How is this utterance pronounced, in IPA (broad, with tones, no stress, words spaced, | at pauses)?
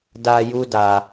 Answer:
da˧ ju˦da˧